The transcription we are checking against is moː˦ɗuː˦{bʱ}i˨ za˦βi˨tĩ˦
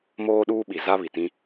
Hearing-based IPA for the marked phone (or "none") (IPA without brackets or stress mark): ɓ